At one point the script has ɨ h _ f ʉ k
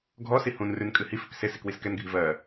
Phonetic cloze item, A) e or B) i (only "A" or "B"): B